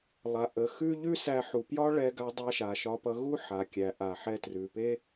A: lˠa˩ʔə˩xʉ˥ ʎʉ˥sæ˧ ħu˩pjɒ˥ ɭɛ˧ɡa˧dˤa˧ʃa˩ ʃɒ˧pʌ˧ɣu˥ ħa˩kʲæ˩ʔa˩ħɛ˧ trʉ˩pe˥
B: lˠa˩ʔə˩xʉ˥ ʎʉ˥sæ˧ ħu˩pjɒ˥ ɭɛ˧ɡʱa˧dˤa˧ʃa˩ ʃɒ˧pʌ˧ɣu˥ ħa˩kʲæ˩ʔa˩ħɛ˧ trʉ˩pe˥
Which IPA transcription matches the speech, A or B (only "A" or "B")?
A